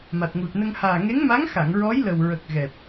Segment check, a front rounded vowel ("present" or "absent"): absent